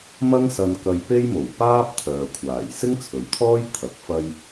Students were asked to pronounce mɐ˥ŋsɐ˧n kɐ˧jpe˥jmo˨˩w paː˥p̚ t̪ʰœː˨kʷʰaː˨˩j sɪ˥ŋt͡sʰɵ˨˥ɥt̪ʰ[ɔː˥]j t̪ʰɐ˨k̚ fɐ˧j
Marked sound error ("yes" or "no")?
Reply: no